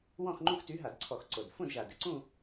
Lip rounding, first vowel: rounded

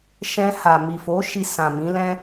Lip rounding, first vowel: unrounded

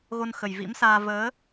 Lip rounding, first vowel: rounded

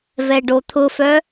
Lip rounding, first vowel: unrounded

